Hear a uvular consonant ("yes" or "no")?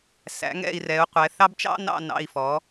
yes